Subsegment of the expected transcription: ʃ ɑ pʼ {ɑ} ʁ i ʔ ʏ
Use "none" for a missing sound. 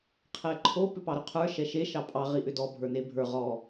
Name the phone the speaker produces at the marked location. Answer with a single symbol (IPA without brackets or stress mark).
ɑ